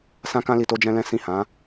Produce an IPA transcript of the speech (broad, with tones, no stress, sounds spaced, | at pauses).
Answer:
s ã˦ k ã˦ l i˧ t o˦ d͡ʒ ɛ̃˦ l ɛ̃˦ s ĩ˦˨ h ã˨˦